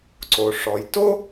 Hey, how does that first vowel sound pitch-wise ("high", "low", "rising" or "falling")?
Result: low